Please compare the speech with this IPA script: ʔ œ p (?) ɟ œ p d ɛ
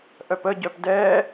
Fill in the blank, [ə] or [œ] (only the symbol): ə